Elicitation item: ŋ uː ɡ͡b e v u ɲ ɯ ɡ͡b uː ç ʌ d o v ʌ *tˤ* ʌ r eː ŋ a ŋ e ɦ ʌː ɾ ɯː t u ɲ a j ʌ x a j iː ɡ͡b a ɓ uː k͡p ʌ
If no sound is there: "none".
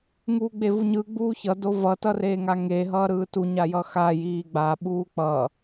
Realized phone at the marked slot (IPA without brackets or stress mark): t